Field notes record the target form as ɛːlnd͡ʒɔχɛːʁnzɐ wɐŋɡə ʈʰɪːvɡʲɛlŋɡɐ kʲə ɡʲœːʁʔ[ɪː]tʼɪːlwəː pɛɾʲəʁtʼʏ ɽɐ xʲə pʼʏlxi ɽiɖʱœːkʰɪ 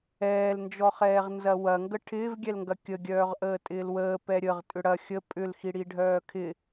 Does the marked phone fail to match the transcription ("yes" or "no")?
yes